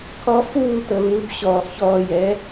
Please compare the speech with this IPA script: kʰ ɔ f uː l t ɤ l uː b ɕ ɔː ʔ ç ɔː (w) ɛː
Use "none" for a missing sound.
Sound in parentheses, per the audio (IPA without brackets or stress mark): j